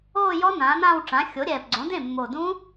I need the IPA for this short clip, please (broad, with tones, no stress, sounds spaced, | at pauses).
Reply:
oː˥˧ j ɔ˦˥ n ãː˩˥ n ã˥˧ w ʈ͡ʂ ã˩˥ xʲ o˩˥ ɾʲ ɛː˨˩ p ɡ͡ǀ õ˩˥ d ẽ˥˩ mː o˨˩ d ũ˦˥